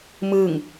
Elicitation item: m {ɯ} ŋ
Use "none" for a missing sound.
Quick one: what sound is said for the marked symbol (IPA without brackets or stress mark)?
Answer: ɯ